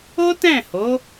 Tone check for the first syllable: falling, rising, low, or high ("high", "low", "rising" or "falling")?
high